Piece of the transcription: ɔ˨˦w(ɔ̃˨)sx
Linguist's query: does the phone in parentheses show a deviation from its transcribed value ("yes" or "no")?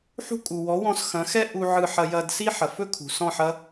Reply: yes